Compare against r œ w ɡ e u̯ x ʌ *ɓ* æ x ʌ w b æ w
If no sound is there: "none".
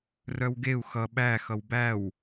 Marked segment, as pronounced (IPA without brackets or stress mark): ɓ